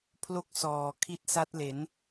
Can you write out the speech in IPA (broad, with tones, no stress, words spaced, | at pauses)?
pʰlo˥˩k̚ sɔː˨˩ kʰi˦˥t̚sa˦˥t̚le˩˦n